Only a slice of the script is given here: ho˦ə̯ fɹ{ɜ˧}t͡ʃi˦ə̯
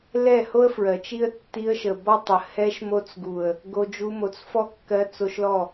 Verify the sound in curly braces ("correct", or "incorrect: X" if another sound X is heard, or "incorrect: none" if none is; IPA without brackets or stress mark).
incorrect: ɜ˨